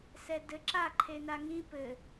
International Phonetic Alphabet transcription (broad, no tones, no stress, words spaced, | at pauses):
sɛdɘǁa ǃʰenaŋĩ pɘ